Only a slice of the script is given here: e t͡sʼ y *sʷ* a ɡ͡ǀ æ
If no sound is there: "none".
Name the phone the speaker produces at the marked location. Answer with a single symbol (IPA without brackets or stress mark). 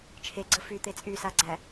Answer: s